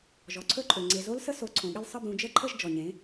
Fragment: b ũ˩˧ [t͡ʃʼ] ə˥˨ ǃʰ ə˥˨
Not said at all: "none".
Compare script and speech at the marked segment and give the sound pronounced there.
d͡ʒ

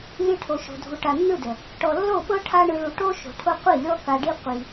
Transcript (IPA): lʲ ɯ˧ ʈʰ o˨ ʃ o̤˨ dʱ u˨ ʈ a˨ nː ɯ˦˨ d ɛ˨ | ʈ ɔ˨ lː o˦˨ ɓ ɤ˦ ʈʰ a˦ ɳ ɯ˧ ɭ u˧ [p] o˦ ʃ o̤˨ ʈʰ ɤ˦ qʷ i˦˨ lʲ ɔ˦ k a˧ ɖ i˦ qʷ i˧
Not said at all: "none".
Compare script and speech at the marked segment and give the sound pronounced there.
ʈ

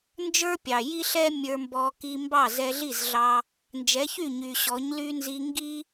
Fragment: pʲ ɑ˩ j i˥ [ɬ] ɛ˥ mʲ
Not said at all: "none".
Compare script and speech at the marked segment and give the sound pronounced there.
ɬ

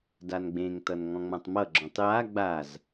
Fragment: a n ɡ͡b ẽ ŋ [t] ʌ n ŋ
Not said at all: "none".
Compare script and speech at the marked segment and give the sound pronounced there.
t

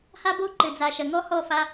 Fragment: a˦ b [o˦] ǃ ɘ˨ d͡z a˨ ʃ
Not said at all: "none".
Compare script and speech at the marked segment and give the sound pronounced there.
o˦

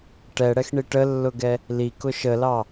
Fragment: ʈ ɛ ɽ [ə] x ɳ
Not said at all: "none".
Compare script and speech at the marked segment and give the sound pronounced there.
ɛ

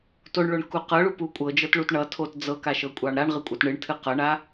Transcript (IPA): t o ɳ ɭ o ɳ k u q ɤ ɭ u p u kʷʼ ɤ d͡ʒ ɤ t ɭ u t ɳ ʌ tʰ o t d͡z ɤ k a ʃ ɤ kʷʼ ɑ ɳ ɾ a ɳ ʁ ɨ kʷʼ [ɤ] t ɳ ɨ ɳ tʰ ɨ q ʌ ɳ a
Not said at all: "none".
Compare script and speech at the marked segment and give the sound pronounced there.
ɤ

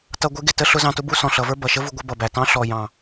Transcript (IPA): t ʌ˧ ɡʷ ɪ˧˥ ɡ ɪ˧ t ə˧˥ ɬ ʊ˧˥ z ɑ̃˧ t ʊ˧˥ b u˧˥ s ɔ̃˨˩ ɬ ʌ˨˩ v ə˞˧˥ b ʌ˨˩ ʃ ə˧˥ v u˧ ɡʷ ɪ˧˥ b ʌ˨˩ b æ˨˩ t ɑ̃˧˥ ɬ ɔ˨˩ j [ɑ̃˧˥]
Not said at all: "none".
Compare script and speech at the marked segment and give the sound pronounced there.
ɑ̃˨˩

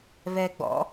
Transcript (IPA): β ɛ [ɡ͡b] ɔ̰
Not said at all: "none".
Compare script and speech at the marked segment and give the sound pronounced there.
ɡ͡b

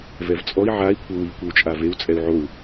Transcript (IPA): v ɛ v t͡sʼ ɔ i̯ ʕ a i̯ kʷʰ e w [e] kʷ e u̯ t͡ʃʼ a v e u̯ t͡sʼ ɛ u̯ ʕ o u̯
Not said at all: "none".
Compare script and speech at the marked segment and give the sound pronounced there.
i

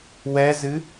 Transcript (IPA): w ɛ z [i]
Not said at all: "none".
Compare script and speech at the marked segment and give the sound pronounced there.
ɨ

